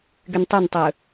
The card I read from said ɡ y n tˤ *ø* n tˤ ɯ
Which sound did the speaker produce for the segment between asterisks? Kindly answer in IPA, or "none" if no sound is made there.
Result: ø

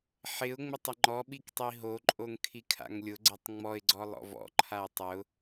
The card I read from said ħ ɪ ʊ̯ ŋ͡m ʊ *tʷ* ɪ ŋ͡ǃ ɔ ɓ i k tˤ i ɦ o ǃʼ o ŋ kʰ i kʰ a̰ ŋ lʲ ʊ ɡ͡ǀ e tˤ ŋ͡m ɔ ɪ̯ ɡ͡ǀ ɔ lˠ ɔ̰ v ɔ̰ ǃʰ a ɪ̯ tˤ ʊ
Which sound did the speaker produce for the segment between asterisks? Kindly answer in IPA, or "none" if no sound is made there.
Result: tˤ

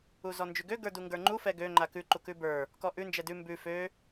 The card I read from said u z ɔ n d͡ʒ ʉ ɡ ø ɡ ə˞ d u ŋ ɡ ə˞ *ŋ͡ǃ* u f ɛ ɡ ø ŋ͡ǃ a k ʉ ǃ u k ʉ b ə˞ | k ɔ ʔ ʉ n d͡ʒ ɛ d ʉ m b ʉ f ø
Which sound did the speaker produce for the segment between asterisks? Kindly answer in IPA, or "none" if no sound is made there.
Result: ŋ͡ǃ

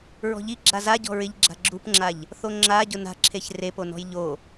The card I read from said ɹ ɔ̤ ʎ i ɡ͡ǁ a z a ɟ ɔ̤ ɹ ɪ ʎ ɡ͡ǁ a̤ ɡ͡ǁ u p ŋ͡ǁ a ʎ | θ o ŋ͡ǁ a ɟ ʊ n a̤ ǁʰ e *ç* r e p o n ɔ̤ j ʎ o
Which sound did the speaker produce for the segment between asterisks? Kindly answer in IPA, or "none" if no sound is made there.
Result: ç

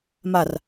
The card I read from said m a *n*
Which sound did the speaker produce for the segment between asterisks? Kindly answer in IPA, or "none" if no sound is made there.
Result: r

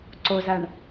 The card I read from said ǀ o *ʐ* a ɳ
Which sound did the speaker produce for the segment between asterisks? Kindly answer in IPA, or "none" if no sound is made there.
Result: z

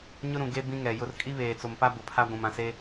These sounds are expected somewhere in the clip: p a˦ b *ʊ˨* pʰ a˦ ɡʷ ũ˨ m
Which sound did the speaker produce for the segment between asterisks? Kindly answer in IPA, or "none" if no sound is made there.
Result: ʊ˨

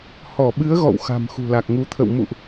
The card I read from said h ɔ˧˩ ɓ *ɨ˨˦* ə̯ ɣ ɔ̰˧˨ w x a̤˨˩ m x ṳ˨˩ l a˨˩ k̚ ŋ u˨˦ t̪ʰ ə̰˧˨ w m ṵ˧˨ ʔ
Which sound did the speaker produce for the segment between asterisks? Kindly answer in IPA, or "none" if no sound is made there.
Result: ɨ˨˦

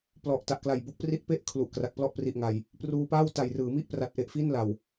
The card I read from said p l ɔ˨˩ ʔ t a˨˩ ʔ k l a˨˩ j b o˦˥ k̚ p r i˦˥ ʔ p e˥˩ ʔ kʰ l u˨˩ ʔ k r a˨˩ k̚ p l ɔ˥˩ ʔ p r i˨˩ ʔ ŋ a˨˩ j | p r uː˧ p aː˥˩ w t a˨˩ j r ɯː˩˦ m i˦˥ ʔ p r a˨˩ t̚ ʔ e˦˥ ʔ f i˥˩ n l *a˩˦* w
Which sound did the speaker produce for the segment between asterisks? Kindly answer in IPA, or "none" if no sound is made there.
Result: a˨˩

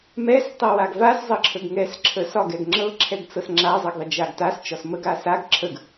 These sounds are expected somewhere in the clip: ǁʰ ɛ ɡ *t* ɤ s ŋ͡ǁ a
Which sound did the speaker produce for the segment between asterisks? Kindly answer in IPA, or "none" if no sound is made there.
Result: t͡s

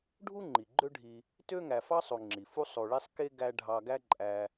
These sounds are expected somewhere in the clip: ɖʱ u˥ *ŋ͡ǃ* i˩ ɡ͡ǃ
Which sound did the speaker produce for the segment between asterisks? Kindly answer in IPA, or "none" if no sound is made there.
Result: ŋ͡ǃ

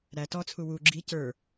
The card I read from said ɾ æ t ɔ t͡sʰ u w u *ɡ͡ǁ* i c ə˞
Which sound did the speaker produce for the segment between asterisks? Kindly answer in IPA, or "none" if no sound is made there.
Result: ɡ͡ǁ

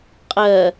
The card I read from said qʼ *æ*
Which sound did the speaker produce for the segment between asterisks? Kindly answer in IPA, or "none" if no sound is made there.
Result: ɜ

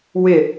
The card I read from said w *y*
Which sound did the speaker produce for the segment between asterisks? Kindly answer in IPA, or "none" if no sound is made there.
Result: ɪ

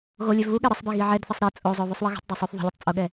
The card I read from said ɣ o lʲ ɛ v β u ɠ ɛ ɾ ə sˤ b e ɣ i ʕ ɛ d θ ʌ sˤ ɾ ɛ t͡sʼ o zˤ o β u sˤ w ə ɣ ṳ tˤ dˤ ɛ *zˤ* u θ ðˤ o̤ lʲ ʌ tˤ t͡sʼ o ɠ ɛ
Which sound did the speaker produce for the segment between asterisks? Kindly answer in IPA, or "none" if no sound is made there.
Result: sˤ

